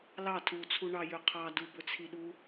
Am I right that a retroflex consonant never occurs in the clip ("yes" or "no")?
no